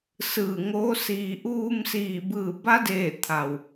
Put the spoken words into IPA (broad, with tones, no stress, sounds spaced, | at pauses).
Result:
s ɯː˧˩ ŋ oː˧˥ s iː˧ ʔ uː˧ m s iː˧˩ b ɯː˧˩ b a˧˥ d eː˧˩ t̪ʰ a˩ w